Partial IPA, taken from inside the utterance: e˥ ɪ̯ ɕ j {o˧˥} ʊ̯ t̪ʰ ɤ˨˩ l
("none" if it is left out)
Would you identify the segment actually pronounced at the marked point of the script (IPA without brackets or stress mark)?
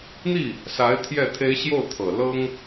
o˥˩